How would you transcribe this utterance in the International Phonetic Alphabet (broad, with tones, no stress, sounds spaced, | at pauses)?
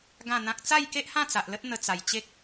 ɡ ã˥˧ n̪ ã˦ k̚ t͡s a˥˧ j k e˦ ʔ h ã˥˧ t͡s a˨ ʔ l ə˦ t̚ n̪ ə˧ t͡s a˨˩ j t͡ɕ e˦ k̚